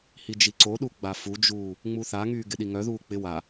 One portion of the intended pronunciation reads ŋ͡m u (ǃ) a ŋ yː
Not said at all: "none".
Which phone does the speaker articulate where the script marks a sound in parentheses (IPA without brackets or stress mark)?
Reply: θ